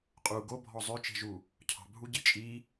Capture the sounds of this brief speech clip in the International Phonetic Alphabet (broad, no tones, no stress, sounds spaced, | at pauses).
qʼ u ɡ o bʱ ɔ zˤ ø t͡ʃ e̤ ʒ u | cʰ ɑ̤ bʱ u ɟ i t͡ʃʼ i